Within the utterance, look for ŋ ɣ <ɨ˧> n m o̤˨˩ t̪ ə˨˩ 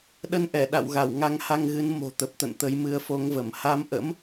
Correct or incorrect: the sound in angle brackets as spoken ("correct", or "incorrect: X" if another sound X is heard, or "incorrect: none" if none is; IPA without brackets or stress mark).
incorrect: ɨ˨˦